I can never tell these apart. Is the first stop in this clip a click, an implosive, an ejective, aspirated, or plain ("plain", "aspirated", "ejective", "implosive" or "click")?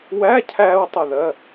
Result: aspirated